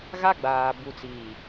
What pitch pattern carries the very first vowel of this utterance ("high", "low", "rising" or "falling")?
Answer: high